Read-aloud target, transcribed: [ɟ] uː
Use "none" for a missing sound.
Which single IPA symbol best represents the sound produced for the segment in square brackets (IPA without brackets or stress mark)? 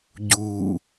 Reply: ɟ